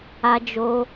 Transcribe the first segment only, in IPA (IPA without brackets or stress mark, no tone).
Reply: a